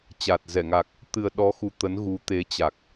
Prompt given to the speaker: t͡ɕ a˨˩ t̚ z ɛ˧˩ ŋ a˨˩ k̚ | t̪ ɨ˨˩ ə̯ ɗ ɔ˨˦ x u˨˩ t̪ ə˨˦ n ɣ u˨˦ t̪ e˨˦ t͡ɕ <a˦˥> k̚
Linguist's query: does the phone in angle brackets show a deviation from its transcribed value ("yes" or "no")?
yes